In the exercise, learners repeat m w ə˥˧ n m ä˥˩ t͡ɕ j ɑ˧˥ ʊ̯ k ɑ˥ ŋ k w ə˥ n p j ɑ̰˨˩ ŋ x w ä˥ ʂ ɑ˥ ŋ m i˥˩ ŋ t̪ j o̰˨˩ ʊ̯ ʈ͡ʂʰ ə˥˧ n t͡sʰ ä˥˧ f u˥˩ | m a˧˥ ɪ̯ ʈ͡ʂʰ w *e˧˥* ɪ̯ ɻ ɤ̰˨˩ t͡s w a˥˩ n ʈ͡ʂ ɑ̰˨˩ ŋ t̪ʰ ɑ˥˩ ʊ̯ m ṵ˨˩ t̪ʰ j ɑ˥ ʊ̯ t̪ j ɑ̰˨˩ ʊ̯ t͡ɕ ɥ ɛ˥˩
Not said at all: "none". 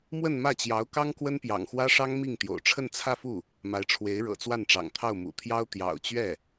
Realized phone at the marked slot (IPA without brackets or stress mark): e˧˥